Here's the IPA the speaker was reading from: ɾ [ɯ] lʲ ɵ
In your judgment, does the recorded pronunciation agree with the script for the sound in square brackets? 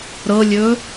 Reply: no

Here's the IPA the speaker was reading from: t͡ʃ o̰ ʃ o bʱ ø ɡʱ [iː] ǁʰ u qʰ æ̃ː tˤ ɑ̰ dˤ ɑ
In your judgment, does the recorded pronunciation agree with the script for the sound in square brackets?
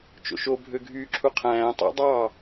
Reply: no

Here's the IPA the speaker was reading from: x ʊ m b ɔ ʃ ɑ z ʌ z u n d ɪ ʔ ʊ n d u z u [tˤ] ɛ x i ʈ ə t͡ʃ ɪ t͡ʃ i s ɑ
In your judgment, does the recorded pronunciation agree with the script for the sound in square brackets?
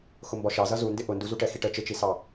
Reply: no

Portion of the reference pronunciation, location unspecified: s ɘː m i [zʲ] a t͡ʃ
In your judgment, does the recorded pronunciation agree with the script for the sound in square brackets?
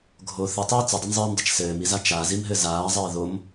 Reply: no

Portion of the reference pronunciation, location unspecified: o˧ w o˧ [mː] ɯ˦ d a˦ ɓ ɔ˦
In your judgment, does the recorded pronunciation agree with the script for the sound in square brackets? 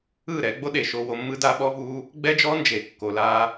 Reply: yes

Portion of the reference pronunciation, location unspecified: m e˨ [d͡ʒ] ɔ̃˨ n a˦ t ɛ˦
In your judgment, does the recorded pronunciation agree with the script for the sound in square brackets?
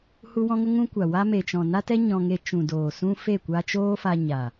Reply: no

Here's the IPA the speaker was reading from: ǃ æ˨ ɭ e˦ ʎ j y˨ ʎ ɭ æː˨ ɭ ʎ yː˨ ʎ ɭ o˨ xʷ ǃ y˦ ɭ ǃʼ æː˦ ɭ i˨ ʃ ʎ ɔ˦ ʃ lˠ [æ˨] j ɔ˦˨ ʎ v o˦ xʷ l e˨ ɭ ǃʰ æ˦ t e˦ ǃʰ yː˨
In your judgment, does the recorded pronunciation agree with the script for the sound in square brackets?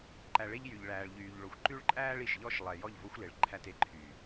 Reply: no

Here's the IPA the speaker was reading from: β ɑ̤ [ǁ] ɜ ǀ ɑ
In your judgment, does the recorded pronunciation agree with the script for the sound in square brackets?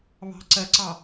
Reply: no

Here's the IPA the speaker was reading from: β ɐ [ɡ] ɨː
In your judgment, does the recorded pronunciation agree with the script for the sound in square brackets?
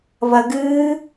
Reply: yes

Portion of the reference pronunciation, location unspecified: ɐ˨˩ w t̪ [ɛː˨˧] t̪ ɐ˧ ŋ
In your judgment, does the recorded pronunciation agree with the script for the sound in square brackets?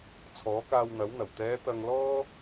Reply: yes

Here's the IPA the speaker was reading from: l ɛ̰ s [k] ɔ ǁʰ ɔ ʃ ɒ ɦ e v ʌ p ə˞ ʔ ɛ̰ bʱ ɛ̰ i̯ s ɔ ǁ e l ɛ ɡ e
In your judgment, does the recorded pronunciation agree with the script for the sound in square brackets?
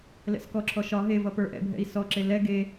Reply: yes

